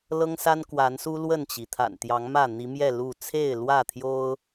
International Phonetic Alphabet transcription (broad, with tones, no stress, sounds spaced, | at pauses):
l ɤ˦ ŋ s a˦ n k w a˨˦ n s u˦ l w ə˥˨ n t͡ɕ i˩ t̪ʰ a̰˨˩ n t̪ j ɑ˨˦ ŋ m ä˥˨ n̪ i˨˦ m j ɛ˥˨ l u˥˨ t͡sʰ e˥˨ ɪ̯ l w ä˥˨ t̪ʰ j o˦ ʊ̯